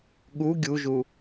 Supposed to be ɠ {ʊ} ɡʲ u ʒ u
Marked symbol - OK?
no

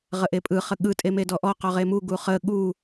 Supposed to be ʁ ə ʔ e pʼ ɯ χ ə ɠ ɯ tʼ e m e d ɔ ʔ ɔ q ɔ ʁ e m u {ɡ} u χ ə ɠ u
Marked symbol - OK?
yes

